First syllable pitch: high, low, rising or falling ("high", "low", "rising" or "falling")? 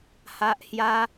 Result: high